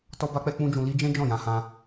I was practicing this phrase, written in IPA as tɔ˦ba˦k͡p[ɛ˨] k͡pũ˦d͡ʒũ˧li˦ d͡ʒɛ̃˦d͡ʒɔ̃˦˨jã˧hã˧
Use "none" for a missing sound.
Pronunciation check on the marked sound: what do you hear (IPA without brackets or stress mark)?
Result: ɛ˦